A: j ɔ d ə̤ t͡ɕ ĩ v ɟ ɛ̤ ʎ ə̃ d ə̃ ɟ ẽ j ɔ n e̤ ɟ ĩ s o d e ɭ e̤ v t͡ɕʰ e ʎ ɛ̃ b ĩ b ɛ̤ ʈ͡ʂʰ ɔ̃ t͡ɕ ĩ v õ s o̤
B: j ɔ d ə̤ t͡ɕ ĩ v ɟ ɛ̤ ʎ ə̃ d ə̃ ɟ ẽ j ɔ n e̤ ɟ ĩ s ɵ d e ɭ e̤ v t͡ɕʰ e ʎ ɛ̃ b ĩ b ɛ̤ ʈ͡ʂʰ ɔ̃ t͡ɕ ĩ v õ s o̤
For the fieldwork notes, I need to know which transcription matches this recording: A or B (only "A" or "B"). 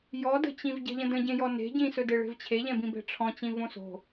B